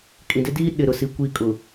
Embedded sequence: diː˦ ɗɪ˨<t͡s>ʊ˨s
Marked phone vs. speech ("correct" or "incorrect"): incorrect